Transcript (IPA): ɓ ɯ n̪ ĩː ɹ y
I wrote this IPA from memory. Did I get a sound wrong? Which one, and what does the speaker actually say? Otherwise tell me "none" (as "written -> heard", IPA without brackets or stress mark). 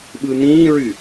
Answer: none